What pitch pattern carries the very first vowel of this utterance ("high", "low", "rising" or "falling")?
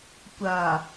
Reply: low